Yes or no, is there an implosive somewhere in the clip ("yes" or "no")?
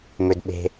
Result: yes